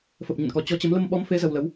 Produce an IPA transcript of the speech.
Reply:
fə˨˩p̚ɲə̰˧˨nkɔ˨˩ t͡ɕɔ˨˦t͡ɕə˨˦m lə˧mɓɔ˨˦mfe˨˦ zə˧wlə˨˦w

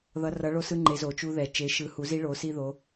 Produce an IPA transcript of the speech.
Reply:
ðʌ˩˧rʌ˩˧ ɭo˧sɯ˧ ŋ͡ǃe˩˧zo˩t͡ʃu˧ ðɛ˩ t͡ʃe˩˧ʃɯ˩˧hu˩˧zi˧ ɭo˩˧si˧ ðo˩˧

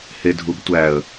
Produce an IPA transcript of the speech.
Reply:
hedʱubtʷæə̯

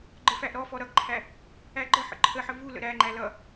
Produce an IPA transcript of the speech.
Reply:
ɡ͡ǃəfæʔɾɔfɔ ɾʌɡǃʰæ | æɡ͡ǃəħə̰ ǃʰəħə vu lə̰ɾæŋ͡ǃæ lʌ

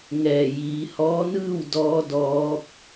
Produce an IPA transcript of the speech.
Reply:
ŋɛː˧˩jiː˩˧hɔː˧˥nɯː˥˨w dɔː˧˥dɔː˧˥p̚

